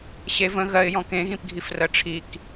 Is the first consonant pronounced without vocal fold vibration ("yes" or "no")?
yes